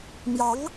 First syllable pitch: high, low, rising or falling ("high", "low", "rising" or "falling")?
rising